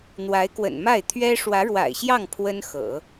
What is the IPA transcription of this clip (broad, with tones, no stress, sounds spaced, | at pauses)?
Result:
n̪ w a˧˥ ɪ̯ k w ə̰˨˩ n m a˥˩ ɪ̯ t̪ʰ ɥ ɛ˥ ʂ w ä˧˥ ɻ w a̰˨˩ ɪ̯ ɕ j ɑ˥˩ ŋ pʰ w ə˥ n x ɤ̰˨˩˦